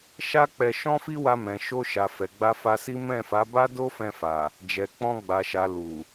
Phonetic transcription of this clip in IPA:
ʃ a˦ k͡p ɛ˧ ʃ ɔ̃˦ f i˦ w a˧ m ɛ̃˨ ʃ o˧ ʃ a˨ f ɛ˨ ɡ͡b a˧ f a˧ s i˦ m ɛ̃˦˨ f a˨˦ b a˦ d o˦ f ɛ̃˧ f a˨ | d͡ʒ ɛ˨ k͡p ɔ̃˧ ɡ͡b a˨ ʃ a˨ l u˨

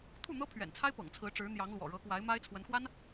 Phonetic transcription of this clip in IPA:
t̪ʰ u˥˩ n̪ ɤ˥ pʰ ɥ ɛ̰˨˩ n t͡sʰ a˥ ɪ̯ p ɤ̰˨˩ ŋ t͡sʰ ɹ̩˧˥ ʈ͡ʂ ɻ̩˧˥ n̪ j ɑ˧˥ ŋ l w ɔ̰˨˩ ɻ ɤ˧˥ k w a˧˥ ɪ̯ m a˥ ɪ̯ t͡sʰ w ə˧˥ n x w a˥ n

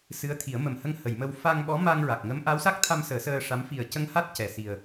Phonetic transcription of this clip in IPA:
s ɨ˧˥ ə̯ t̪ʰ i˨˩˦ ə̯ m ə˨˩ m h ə˧ ŋ h ə˨˩˨ j m ə˧ w f a˧ ŋ ɓ ɔ˧˥ m a˧ ŋ ɹ a˨˩ k̚ ŋ ə˧˥ m ʔ a˧˥ w s a˦˥ k̚ t̪ʰ a˧ m s əː˨˩˦ s əː˧ ʂ a˧˥ m f i˨˩ ə̯ c ə˧ ŋ h a˦˥ t̚ c ɛ˨˩˨ s i˨˩ ə̯

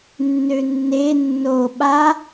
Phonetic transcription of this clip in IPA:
nː ø nː e nː o ɓ a

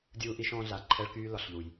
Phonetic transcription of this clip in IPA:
dʲ uː˦ ʔ i˦ ʃ ɔ̃ː˦ ɮ a˨ ǃʰ ɛ˦ ɭ k yː˦ l ɒ˨ ɬ ʎ u˨ j

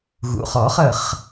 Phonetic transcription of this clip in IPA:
ɣ ṵ˩˧˩ χ ɔ˨˩˦ χ ə˧˩ χ

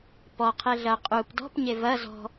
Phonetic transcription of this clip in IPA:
p ɔ qʰ e ɮ ɐ qʼ u p d ɔ̤ p ɲ e v ɐ z ɔ̤

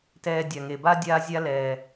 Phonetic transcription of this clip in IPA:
t ɛː˧ dʲ a˨ ŋ e˨ b a˦ dʲ aː˦ zʲ a˦ l ɛː˨

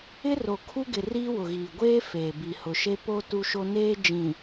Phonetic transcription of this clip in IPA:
ɪ˦ r o˨ kʰ u˦ ɡ ɪ˨ r iː˦ w ʊ˨ ɣ iː˨ ɡʷ eː˦ f eː˨ b i˨ h ʊ˨ ʃ e˦ p o˦ t u˦ ʃ o˦ n eː˦ d͡ʒ ĩ˨

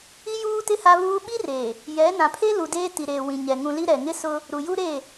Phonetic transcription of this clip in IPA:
i˦ j uː˦ t ɪ˦ h a˦ β uː˦ ɓ i˦ r e˨ | j ɛ˨˦ n ã˨ pʰ e˦ l u˨ d eː˦ t i˨ ɾ eː˨ w ĩ˨ ɲ ɛ˨ ŋ ũ˨ l i˦ ɾ ɛ˨ ŋ ɪ˦ s ʊ˦ | ɾ u˨ j u˦ ɾ e˦˨

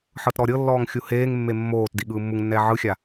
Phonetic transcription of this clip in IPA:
ħ ɤ t ɾ ɔ ɾʲ ɤ lː ɔː ŋ xʲ u h eː ŋ mː e mː oː t d i ɠ ɯː mː u ŋ nː ɛː ʕ ɯ xʲ a

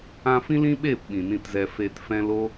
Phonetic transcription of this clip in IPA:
ã˧ f ĩ˦ l ĩ˦ ɓ eː˦˨ p ɓ ĩ˨ n ĩ˧ t z ɛ˧ f eː˧ t f ɛ̃˦ l o˦

